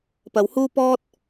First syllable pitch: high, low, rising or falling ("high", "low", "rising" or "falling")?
low